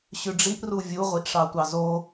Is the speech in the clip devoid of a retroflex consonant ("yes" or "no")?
no